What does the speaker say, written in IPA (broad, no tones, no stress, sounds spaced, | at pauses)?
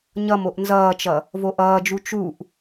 ɲ ʌ m o ʔ n z ʌː t͡ʃ ʌ | v o ʔ ʌː d͡ʒ u t͡ʃ u ʔ